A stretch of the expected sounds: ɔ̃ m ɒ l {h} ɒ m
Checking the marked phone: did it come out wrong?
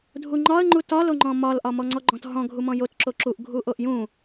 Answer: yes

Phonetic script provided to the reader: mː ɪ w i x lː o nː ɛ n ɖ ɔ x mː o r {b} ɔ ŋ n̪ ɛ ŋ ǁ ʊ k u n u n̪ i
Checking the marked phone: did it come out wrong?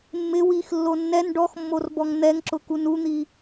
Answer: no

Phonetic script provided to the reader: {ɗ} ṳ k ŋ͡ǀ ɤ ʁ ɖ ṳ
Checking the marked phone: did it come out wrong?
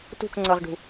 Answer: yes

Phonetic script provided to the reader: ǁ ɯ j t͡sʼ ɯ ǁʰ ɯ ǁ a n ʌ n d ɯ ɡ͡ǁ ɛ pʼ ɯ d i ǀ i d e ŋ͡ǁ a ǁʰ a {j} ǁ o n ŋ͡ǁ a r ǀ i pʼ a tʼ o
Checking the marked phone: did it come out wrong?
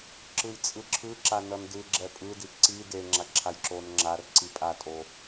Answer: no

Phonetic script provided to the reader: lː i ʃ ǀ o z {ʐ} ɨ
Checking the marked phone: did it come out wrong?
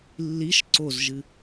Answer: yes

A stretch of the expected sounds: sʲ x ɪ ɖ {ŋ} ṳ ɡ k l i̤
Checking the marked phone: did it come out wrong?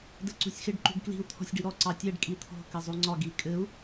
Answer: yes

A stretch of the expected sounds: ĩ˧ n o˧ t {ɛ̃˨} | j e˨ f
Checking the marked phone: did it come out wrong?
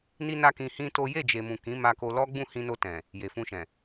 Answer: no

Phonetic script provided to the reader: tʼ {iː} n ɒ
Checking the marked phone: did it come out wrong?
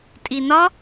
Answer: yes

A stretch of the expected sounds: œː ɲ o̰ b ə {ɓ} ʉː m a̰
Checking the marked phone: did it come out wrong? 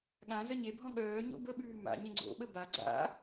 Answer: no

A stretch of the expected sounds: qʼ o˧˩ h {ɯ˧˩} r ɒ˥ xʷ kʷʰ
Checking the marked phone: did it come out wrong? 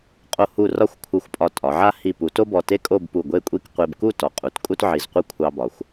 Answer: yes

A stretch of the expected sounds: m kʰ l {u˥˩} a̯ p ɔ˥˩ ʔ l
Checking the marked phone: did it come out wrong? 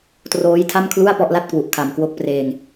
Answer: no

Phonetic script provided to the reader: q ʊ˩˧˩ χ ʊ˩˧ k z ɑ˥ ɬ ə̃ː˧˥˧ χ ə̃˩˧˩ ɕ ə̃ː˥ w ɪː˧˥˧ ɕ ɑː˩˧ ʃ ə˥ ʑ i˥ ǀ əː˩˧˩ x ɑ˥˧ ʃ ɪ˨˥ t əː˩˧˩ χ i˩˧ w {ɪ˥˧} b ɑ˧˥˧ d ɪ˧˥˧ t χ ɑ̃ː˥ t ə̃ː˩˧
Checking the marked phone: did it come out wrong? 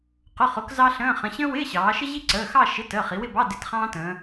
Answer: no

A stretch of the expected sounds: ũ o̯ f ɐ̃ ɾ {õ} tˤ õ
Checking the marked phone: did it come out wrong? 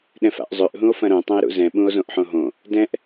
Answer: no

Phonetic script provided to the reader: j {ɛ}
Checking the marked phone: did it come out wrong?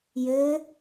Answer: yes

